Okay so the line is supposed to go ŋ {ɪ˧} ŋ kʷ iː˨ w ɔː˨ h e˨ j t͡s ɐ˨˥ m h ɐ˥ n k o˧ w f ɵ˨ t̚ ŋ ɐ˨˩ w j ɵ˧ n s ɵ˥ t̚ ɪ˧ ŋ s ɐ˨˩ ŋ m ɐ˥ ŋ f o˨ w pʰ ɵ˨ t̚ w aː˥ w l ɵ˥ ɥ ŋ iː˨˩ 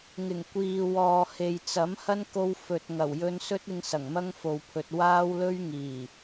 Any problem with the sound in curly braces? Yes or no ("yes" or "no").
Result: yes